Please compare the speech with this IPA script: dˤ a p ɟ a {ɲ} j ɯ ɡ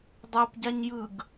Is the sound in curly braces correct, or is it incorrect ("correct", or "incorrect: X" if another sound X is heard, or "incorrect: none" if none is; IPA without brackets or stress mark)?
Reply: correct